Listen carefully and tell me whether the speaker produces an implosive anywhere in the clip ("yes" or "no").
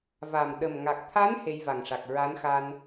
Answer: yes